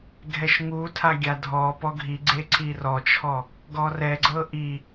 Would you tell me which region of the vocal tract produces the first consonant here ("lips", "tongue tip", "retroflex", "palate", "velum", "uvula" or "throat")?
velum